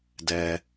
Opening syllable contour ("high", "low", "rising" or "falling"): low